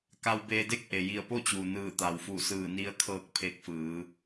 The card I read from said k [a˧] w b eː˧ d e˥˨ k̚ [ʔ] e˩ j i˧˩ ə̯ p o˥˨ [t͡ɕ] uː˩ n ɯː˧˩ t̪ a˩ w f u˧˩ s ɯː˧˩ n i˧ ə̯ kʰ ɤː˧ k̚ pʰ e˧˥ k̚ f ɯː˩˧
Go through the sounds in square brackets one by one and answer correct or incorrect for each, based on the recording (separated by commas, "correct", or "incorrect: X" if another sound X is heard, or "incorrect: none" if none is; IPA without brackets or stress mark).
correct, correct, correct